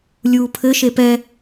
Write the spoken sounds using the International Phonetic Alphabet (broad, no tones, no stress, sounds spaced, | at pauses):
lʲ uː pʰ ɘ ʃ e p ɛ